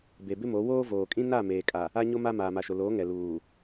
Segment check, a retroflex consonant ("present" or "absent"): absent